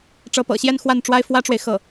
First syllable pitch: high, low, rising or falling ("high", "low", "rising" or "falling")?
rising